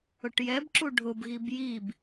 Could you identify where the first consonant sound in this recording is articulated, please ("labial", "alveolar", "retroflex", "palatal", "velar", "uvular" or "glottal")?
retroflex